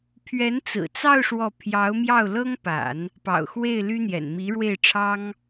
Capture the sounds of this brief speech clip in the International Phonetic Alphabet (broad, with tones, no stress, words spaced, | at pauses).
pʰɥɛ˧˥nt͡sɹ̩˨˩t͡sɑ˥˧ʊ̯ ʂwɔ˥˩ pʰjɑ˧˥ʊ̯mjɑ˥˩ʊ̯lɤ˥ŋpa̰˨˩˦n | pɑ̰˨˩ʊ̯xwe˥˩ɪ̯ ly˥n̪jɛ̰˨˩n mi˧˥ɻwe˥˩ɪ̯ʈ͡ʂʰɑ˥ŋ